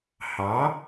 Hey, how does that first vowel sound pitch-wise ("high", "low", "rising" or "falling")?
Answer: rising